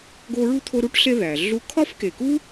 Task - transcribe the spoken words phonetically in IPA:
ɡ o˦ ɹ u˥ t̪ʰ o˦ ɾ u˥ ʈ ɬ e˦ ð æ˩ ɮ u˥ kʰ ɒ˥ f k e˨ k u˥

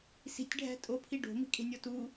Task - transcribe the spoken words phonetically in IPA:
s i̤ tʲ ɖʱ æ̤ tʼ o pʰ i ɖ o̤ m i̤ kʼ e̤ nʲ o t u

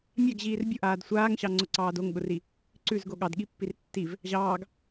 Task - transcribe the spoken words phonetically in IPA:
mʲ a ɡ ʑ iː r bʲ ʊ ʔ aː d sʷ aː ŋ ɕ ɑ ŋ͡ǀ ʊ ǀ ɑː d o ŋ ɠ ʊ r i | ǀ ʉ z ɡ o ɠ ɑ d ɠ i pː i r tː i v | ʑ ɑː ɡ

